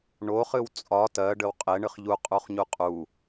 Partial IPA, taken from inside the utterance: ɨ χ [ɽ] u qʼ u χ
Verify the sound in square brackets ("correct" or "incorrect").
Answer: incorrect